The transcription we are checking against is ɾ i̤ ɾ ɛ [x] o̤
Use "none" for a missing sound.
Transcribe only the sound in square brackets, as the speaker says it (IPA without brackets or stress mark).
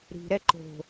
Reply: ǃ